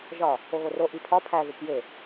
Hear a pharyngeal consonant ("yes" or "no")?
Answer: no